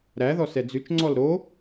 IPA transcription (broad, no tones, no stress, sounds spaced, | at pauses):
ɾ æ ð ɔ s ɛ d͡z ʉ t͡ʃ ŋ͡ǀ ɔ l ɾ o